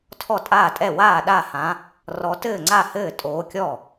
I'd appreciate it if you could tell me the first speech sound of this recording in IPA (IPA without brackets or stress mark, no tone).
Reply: tʰ